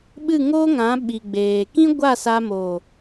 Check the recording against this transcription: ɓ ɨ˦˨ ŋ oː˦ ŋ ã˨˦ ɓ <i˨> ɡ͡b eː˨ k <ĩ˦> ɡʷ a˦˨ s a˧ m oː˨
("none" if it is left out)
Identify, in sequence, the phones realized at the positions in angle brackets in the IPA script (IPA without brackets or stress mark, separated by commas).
i˨, ĩ˦